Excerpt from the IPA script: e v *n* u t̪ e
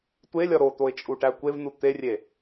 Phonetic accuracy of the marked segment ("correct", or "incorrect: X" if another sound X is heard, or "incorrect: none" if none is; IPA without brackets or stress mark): correct